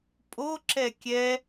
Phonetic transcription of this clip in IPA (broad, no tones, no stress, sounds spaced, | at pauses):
pʼ o ǁ ɛ kʲ ɛ